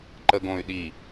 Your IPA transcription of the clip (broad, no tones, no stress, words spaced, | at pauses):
ǃəɡõy̯ɗi